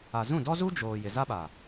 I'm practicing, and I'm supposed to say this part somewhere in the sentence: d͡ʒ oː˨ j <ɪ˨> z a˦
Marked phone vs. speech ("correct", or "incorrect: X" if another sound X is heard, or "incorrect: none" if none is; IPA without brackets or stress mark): correct